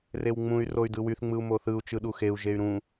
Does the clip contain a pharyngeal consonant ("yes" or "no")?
no